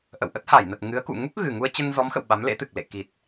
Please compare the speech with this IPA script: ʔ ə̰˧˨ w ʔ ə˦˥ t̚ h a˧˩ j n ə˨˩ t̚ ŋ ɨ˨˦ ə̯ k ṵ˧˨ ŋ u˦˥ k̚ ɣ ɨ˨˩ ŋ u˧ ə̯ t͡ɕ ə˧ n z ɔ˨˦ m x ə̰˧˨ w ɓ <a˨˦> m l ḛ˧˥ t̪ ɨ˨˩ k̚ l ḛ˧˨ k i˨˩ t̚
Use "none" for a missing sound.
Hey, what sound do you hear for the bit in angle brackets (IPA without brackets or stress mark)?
a˨˦